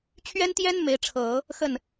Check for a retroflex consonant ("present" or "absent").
present